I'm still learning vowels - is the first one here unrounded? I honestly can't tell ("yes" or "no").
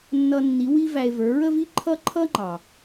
yes